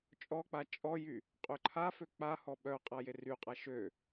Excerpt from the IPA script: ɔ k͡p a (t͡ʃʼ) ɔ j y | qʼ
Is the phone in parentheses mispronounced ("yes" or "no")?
no